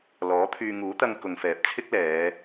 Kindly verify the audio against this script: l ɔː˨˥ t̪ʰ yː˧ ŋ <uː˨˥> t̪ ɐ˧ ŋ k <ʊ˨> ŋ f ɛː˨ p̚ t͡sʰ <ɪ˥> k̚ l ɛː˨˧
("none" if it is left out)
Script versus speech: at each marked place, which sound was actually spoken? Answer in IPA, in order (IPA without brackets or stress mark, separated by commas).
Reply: uː˨˥, ʊ˨, ɪ˥